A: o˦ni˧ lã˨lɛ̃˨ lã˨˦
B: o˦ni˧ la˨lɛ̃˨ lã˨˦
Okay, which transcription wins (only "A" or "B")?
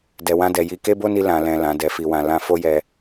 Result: A